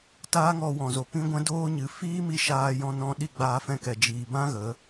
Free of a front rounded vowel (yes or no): yes